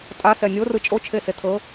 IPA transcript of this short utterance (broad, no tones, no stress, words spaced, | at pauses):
tʼasɛ nʲorɯ t͡ʃʼot͡ʃʰese tʰɤ